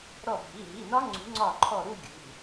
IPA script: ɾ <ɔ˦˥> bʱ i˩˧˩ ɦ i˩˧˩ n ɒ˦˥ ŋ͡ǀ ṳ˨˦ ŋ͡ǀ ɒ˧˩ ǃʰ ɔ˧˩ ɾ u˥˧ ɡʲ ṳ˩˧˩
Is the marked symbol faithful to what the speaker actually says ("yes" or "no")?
no